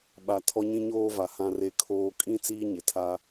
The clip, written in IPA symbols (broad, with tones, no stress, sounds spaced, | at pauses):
ɓ a˦ tʰ ɔ˦ ɲ ĩ˦ ɲ oː˦ v a˨ h ã˦ r e˦ kʰ oː˦ kʼ ĩ˦ t͡s iː˦ ɲ ɪ˨ tʰ a˦